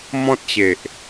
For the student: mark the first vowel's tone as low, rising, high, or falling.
high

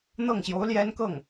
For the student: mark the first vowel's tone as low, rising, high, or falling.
falling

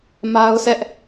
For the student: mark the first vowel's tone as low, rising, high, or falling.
high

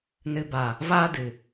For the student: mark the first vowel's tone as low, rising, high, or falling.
low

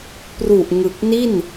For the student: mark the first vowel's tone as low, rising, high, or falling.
low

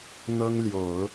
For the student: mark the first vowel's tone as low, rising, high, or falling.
high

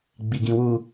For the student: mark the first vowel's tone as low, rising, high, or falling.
low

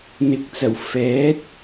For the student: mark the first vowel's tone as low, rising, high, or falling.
rising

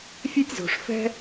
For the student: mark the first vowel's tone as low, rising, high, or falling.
high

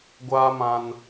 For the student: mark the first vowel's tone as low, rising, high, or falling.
high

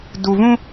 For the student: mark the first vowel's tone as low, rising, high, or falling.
low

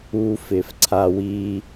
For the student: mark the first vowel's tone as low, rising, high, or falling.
high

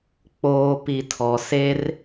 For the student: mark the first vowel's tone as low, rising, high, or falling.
low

